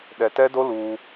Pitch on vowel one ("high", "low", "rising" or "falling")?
low